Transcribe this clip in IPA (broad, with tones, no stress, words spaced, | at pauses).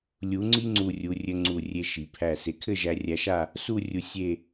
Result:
lʲu˩˧ ŋ͡ǀi˥ŋ͡ǀu˧˩rʲu˩˧rʲɘ˧ ŋ͡ǀu˧˩ rʲe˧ ʃi˩˧ pʰæ˧˩se˧˩kʰɘ˥˧ʒæ˧ rʲæ˧ʃa˥˧ | su˥˧rʲu˧ sʲe˥˧